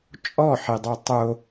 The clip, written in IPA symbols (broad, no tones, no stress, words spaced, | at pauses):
t͡ʃʼɔħidˤo tˤo